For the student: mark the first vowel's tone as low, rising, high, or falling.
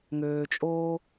low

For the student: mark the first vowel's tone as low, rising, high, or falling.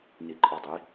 low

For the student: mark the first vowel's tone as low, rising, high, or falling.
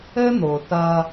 high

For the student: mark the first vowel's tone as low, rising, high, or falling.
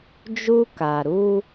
high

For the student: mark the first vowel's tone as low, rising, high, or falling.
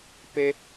high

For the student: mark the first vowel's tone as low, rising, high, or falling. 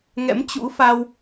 rising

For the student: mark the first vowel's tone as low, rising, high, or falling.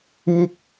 falling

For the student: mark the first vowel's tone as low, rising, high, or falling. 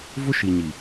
high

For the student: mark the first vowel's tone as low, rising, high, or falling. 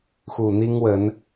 low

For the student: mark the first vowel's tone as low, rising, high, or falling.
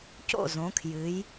falling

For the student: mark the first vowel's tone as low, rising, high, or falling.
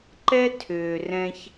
high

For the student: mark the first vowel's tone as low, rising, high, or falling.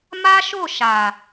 high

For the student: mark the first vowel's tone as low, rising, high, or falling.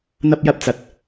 high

